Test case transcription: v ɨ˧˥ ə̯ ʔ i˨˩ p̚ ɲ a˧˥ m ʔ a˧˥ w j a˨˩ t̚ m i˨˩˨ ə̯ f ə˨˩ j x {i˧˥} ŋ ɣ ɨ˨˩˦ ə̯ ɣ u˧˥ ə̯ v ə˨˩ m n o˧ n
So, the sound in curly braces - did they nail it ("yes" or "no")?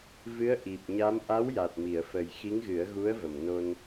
yes